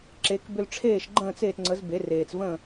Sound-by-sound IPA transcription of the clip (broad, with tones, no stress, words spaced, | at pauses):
ǁe˩˥k bʏ˧lʈ͡ʂʰeː˥˩ʃɡ͡ǃə̃ː˥˩t͡s eː˥˩t ŋ͡ǀə˩˥z be˩˥reː˩t͡s və̃˥˩